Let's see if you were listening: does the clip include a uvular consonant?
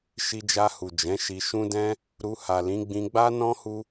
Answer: no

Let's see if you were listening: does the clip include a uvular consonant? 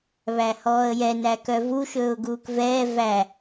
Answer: no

